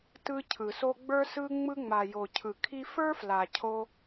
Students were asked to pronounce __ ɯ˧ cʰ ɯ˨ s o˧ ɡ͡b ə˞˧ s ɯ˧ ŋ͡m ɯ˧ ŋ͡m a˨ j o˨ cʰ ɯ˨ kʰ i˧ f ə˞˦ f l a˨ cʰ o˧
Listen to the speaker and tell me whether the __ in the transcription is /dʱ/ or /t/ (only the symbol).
t